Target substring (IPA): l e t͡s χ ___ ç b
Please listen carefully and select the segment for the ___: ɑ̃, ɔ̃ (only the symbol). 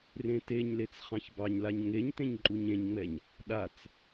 ɑ̃